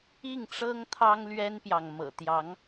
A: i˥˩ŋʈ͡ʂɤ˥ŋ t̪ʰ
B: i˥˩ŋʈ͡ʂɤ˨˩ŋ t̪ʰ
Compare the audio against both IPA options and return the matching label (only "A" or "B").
A